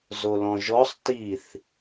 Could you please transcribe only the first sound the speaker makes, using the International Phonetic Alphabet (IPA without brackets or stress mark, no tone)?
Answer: z